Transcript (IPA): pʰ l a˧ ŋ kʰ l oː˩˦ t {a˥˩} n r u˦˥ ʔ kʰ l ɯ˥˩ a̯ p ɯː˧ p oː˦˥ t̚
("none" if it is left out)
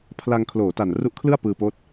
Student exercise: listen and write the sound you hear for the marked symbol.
a˨˩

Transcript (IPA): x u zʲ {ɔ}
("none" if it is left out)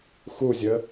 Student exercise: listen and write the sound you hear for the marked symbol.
ə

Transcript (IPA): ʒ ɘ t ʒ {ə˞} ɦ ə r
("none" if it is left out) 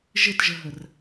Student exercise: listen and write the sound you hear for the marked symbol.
ə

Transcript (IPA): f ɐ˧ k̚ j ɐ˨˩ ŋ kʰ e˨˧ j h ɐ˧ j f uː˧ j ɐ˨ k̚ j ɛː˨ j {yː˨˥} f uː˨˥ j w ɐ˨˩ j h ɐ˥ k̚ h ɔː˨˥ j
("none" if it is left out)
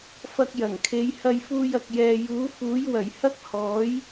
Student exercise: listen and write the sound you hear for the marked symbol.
uː˨˥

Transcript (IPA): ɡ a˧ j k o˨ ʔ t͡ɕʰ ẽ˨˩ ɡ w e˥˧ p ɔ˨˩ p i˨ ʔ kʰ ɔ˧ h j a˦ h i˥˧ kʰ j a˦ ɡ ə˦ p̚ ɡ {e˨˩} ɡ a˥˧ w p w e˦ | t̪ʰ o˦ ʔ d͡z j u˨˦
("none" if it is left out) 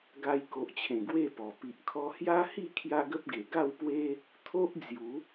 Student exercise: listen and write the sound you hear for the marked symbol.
e˨˩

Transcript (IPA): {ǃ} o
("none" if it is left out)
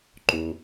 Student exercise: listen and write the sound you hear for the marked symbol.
ǃ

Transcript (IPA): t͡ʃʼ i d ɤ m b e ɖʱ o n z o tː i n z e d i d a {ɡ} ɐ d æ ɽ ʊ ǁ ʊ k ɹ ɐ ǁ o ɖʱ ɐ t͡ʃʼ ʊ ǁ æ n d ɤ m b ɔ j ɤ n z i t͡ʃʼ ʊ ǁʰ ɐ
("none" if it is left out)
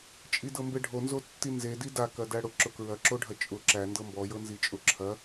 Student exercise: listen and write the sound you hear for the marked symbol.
k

